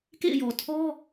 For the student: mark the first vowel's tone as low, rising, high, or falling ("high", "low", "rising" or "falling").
falling